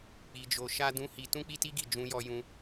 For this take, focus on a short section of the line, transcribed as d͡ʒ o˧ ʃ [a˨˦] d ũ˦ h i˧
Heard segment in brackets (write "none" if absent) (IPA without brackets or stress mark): a˦